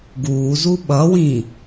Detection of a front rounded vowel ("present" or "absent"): absent